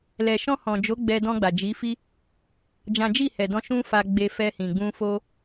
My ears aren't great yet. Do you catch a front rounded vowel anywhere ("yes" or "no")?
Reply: no